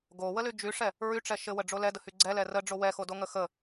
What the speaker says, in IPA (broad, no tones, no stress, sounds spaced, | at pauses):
ɡ o w ə l y d͡ʒ y ʂ ɛ | ɹ y ʈ͡ʂ ɛ ʃ ɘ w ə ɖ͡ʐ o l ɛ d ə h y ɡ͡ǀ ɛ l ɛ r ə ɖ͡ʐ o w ɛ x o d o ŋ ə x ə